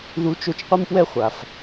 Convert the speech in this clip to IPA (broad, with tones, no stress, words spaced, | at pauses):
ðu˧˥t͡ʃo˧t͡ʃ qʷi˥mpwɛ˥ χʷa˩f